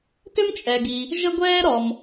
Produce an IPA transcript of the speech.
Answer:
tʏ˥mt͡ʃʼɛ˩ɡi˩ | ʒə˥ ɡʷɛː˥ɾɔ˩m

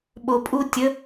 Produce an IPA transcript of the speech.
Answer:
ɓo pʼu tʲə

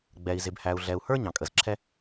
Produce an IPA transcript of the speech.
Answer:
ɡ͡bɛ˨i̯zɪ˨b hæ˨u̯ɮɛ˨u̯ hə˞˦ ɲɑ̃˨kʼə˨zǁʰɛ˦

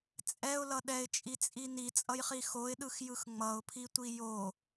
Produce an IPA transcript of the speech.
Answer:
t͡sʼɛʊ̯lʌ ɗɛɪ̯t͡ʃʼit͡sʼi nit͡sʼʌjχi xoɪ̯ɗɯxjɯx ŋ͡mʌʊ̯pʰitʷi jo

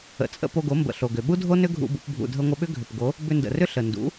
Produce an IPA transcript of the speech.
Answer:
ə̰˨t͡sʼə̰˧ po˧ɡo˨˦ mbə̰˨ɬo˨ɡʏ˨ ɓu˦dʱo˦nʏ˦ ɡʱṵ˧bṵ˧p bʱṵ˨dʱə˧ŋʷə˧ɓʏ˦ ɡʱʏ˨pɡo˨˦ | bʏ˧ndə̰˨rʏ˦ ɬə˨ ndṵ˨˦

